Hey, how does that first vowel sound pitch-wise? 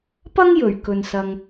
high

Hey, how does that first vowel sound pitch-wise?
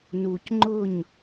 low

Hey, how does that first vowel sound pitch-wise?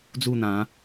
falling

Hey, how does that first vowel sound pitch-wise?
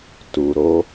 low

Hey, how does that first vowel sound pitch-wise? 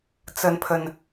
rising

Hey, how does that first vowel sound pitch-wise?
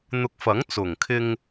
rising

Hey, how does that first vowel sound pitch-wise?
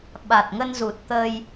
low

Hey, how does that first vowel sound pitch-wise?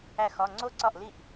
falling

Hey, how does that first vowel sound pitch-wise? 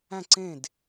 falling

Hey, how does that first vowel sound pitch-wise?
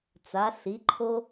rising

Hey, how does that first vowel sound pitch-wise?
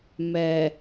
low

